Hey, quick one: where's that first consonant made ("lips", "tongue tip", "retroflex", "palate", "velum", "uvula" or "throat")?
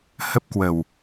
throat